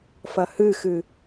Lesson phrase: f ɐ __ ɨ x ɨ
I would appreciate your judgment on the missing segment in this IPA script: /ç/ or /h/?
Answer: h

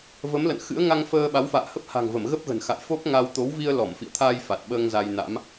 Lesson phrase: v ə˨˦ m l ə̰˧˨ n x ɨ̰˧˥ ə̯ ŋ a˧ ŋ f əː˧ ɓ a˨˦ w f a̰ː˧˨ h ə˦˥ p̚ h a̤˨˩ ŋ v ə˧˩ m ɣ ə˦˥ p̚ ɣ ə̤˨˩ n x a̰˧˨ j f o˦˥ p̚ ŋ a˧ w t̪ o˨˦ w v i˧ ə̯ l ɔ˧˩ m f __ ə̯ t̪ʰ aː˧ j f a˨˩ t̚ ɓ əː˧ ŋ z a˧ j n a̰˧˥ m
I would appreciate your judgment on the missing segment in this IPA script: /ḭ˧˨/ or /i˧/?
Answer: ḭ˧˨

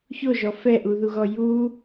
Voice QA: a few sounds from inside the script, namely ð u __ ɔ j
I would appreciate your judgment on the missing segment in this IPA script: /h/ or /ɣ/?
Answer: ɣ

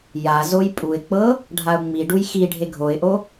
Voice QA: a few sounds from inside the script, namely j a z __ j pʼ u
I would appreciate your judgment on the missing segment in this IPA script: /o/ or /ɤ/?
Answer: o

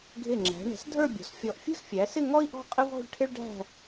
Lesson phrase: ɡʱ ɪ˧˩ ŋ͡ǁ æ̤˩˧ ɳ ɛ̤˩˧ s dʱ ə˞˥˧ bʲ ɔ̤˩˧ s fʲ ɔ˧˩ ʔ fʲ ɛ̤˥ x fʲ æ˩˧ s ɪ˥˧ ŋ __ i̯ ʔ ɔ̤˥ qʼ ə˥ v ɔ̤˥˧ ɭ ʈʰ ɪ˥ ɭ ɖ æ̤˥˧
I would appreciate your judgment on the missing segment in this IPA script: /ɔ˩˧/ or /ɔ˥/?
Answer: ɔ˥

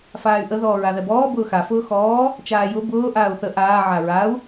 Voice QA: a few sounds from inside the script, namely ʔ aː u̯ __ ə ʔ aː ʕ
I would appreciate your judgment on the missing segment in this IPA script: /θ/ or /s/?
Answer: θ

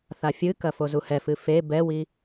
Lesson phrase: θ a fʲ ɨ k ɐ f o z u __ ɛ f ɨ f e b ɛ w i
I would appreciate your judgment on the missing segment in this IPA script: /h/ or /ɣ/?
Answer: h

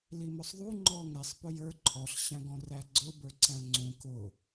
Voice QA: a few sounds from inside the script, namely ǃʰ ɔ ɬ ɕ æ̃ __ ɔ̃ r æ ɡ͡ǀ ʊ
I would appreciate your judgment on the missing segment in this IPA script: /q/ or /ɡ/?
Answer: ɡ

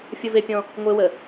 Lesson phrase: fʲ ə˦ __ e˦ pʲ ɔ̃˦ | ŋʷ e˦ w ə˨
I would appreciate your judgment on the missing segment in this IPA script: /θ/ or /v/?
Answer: v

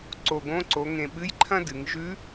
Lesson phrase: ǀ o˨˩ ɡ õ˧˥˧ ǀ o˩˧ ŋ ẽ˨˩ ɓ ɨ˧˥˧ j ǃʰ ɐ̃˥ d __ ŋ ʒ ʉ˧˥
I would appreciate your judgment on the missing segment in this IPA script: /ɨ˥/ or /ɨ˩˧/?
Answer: ɨ˩˧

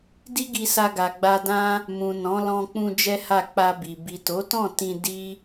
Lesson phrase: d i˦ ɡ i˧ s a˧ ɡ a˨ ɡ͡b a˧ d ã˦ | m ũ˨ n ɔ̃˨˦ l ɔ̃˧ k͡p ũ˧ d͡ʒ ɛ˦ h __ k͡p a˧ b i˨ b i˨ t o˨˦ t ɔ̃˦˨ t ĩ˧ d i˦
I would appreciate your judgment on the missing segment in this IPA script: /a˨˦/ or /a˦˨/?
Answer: a˦˨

